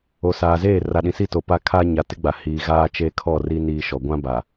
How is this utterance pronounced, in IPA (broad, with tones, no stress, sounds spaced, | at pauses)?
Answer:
o˨ s aː˨ z eː˦˨ r a˨ ɗ ĩ˨ s i˦˨ t o˨ p a˦ kʰ aː˦ ɲ a˨ t ɪ˦ ɡ͡b a˨ h iː˨ ɣ aː˦ t͡ʃ e˦ kʰ ɔ˦˨ r i˦ n iː˦ ʃ ɔ˨ ɡʷ ã˦ b a˨